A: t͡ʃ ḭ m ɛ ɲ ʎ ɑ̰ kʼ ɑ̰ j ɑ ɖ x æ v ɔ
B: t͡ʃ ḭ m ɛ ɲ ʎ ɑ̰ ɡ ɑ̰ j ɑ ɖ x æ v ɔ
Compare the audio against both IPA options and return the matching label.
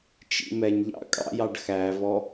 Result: A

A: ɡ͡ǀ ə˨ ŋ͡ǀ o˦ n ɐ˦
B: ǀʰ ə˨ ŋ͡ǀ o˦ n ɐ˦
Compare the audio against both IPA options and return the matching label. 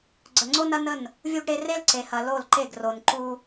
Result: A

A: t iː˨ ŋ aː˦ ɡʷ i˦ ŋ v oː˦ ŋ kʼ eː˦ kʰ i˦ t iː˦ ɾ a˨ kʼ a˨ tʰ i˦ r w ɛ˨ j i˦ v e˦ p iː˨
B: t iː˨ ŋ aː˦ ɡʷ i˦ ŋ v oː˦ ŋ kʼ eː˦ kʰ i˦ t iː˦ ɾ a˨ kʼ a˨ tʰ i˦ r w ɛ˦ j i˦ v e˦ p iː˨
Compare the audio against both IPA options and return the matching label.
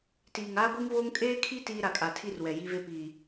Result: A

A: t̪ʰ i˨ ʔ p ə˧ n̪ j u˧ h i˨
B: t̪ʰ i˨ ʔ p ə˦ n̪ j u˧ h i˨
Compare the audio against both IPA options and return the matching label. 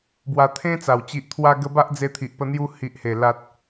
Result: A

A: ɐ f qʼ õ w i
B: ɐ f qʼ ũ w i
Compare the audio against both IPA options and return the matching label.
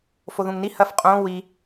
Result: A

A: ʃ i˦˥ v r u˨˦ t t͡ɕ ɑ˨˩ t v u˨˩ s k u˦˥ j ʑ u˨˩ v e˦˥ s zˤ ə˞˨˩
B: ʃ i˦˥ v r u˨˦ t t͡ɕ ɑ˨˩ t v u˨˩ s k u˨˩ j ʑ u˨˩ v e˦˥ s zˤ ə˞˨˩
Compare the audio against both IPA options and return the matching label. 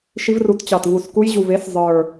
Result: A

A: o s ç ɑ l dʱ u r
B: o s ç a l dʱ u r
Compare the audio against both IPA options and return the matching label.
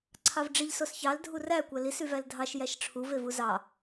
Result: A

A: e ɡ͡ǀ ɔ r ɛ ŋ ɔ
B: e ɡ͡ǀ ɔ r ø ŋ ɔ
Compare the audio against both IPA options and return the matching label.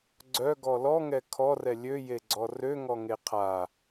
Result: B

